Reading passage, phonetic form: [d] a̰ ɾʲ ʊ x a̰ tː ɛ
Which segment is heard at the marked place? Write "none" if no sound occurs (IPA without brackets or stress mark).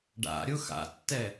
ɖ